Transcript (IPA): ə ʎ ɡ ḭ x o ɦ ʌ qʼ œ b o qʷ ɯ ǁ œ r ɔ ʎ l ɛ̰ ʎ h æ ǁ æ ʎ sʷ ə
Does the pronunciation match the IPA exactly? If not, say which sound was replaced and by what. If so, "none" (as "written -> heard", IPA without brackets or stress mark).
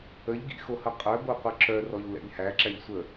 ɦ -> h